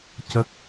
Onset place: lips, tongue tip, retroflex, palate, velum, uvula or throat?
palate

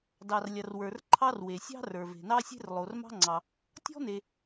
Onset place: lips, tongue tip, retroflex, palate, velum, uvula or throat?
tongue tip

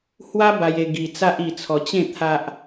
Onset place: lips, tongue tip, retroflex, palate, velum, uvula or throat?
throat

